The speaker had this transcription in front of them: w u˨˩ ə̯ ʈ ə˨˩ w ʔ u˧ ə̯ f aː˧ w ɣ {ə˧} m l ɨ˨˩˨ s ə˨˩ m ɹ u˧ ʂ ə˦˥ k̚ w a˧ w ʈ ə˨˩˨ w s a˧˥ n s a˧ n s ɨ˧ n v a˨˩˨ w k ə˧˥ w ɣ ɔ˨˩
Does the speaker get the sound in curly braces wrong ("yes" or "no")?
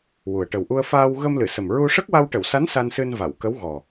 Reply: no